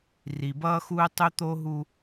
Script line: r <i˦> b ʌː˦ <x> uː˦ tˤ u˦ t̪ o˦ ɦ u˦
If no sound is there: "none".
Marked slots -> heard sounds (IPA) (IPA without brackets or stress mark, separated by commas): i˨, x